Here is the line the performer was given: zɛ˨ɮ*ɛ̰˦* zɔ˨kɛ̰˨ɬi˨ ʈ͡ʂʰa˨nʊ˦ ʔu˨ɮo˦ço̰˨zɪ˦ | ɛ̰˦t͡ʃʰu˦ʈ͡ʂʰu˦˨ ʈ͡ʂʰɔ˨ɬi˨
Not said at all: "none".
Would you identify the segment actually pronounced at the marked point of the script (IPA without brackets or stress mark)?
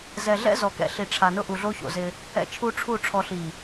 ɛ̰˦